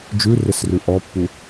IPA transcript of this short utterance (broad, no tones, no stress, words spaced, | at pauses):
d͡ʒʉrɪsrʉ ʔɔpːu